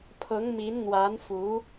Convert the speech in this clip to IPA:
pʰ ɤ˧˥ ŋ m i˧˥ n n̪ w a˧˥ n f u˧˥

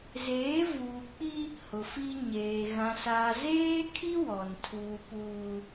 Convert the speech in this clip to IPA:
z eː˨˦ v uː˨ k͡p i˦ | h ʊ˨ f i˦ ɲ eː˨ ɣ ã˨ s aː˨ z eː˦ kʰ i˦ w ɔ˨ n tʰ uː˨ p uː˨

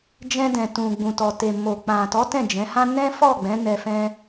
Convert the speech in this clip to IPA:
d͡ʒ ɛ̃˧ d ɛ̃˨ t ũ˨ ɡ͡b ũ˨ t ɔ˨ t e˨ m o˨ k͡p ã˨ t ɔ˨˦ t ɛ̃˦˨ d͡ʒ ɛ̃˨˦ h ã˦ n ɛ̃˦ f ɔ˦˨ ɡ͡b ɛ̃˨˦ n ɛ˧ f ɛ̃˧

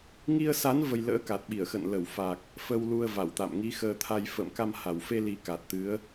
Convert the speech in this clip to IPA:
ŋ i˧ ə̯ s a˨˦ n v ə˧ j l ə̰ː˧˥ k a˨˩ t̚ ɓ i˧˩ ə̯ x ə̰˧˨ n l ə˧˩ w f a˨˩ k̚ | f ə˧ w l u˧ ə̯ v a˧˩ w t̪ a̰˧˨ m ŋ i˨˦ x əː˧ t̪ʰ a˧ j f ə̰ː˧˨ m k a˧ m h a˧˩ w f e˧ l i˨˦ k a˨˩ t̚ t̪ ɨ˨˦ ə̯

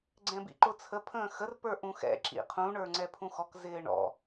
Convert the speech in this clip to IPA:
ɡ͡ǀ ɛ̃ b ḭ ǃ ʊ t͡sʰ ə pʰ ə̃ː x ə r p ə˞ ʔ ũ x ɛ̰ ǁ ḭ qʰ ũ ɳ ə˞ ŋ͡ǀ ɛ pʰ ũ x ɔ k z ɪː ɳ ɔ̰

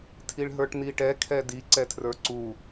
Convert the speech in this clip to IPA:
tʰ i ɭ ɦ ə˞ ʈ n i ʈ ɛ kʰ ɛ d i ǀ ɛ tʰ r ə˞ ǀ u

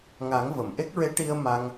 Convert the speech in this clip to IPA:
ŋ a˨˩˦ ŋ v ə˨˩˨ m ʔ e˦˥ k̚ ɹ e˧˥ ʈ i˧ ə̯ m a˧ ŋ

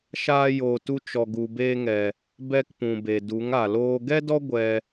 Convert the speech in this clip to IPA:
ʃ aː˧ j oː˨ t u˧ t͡ʃ ɔ˨ ɡ u˨ b eː˧ ŋ ɛ˨ | b ɛ˧ k p ũ˨ b e˨ d u˨˦ ŋ a˨ l oː˦ ɡ ɛ˦ d ɔ˦ ɡʷ ɛ˧

